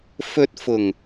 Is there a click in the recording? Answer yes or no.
no